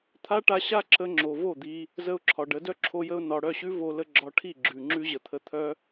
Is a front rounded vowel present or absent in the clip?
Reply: present